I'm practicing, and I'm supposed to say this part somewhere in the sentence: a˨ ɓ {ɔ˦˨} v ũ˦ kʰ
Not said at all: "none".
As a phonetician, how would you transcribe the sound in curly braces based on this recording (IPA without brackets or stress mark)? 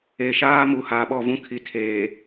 ɔ˦˨